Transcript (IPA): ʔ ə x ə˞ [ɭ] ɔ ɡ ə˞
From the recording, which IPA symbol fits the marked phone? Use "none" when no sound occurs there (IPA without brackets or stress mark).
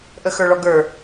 ɭ